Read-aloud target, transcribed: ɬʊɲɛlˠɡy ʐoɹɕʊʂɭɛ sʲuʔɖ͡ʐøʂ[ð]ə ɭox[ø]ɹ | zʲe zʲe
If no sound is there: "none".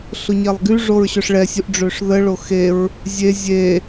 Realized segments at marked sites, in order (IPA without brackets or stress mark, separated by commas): ð, e